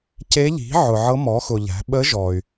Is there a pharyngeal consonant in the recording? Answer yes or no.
yes